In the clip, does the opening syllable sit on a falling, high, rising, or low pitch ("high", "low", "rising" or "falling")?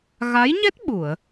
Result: rising